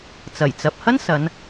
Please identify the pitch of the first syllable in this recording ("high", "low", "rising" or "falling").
low